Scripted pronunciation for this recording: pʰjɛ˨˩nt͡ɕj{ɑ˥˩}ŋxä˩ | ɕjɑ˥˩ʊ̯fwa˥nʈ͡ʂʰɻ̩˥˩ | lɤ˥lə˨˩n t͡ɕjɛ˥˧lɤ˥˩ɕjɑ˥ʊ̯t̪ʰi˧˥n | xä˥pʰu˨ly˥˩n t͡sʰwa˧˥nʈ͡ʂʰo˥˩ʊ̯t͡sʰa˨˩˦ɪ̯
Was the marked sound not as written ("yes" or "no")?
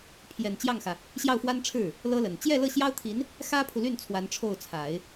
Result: no